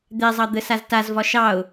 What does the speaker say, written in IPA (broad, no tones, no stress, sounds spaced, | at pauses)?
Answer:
d̪ ɛ zˤ ɑ d̪ ə s a z t a z v ɒ ʃ ɑ ʊ̯